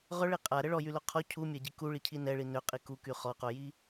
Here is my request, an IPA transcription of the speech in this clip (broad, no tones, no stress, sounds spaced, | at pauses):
ʁ œ ɭ i qʼ a ɾ ə ɭ ɔ j y l o qʰ ɔ cʰ u mʲ a ɟ i k u ɭ i cʰ i n ɛ ɭ i n ø qʼ i k u k y χ ɔ q o j i